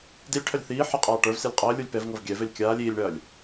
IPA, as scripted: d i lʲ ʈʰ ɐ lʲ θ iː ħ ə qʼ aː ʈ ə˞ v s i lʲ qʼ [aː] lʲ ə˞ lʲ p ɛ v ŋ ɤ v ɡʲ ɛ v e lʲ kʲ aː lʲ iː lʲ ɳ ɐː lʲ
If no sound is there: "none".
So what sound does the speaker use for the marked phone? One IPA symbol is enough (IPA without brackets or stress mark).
əː